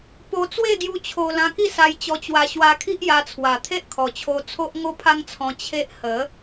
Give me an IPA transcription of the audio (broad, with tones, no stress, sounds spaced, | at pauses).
p o˧ t͡s w e˥˧ ɡ j u˧ t͡ɕʰ o˧ l ã˧ k i˥˧ s a˧ j t͡ɕ ɔ˧ t͡ɕ w a˧ ɕ w a˧ kʰ i˦ ʔ j a˧ t͡sʰ w a˨˩ t̪ʰ e˦ ʔ kʰ ɔ˨˩ t͡ɕʰ o˧ t͡sʰ o˦ ʔ ŋ o˦ pʰ a˦ ŋ t͡sʰ ɔ̃˧ t͡ɕʰ e˦ ʔ h ə˨˦